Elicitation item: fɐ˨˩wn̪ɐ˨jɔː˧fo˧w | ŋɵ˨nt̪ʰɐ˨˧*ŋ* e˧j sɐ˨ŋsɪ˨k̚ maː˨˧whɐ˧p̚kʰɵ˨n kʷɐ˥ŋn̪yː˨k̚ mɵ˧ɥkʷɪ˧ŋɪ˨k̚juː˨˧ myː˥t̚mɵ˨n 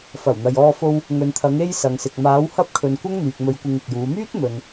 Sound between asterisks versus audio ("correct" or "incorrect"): correct